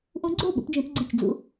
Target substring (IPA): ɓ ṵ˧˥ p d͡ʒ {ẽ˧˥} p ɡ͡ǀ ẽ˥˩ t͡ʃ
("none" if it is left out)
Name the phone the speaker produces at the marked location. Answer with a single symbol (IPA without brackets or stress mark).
ẽ˧˥